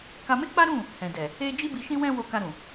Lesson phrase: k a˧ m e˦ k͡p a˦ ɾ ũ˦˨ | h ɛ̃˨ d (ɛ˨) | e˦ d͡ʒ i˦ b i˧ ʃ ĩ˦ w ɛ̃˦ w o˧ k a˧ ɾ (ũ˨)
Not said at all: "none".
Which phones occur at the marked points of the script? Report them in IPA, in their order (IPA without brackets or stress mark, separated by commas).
ɛ˨, ũ˨